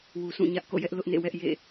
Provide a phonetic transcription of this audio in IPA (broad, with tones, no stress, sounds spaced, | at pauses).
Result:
w u˨ s ũ˦˨ ɲ ä˦ ʔ k o̰˦˨ j ɛ˦ ʔ l ʊ˦ ʔ n ḛ˦˨ w ɛ˦ ʔ j ḛ˦˨